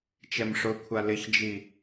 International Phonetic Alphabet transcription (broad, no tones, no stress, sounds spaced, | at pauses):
t͡ʃ ɛ m ʂ ʊ kʷʰ a l ɪ ç d͡ʒ i